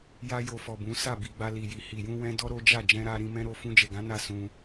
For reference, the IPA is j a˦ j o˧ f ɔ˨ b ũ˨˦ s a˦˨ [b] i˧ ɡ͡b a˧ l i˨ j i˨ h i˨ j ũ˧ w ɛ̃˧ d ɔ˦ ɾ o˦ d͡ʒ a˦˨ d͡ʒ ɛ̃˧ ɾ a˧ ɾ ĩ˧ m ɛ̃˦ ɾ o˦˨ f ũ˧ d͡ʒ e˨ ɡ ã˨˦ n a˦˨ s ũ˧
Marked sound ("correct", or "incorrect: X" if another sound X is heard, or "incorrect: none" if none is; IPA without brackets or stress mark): correct